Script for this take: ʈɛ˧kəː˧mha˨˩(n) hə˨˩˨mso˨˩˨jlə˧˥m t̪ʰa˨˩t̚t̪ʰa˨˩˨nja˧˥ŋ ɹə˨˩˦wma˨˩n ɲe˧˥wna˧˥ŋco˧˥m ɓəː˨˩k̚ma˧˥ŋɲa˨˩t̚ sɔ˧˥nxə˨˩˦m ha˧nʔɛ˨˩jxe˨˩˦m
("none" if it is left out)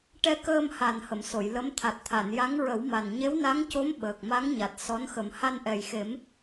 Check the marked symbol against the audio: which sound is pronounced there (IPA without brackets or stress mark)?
n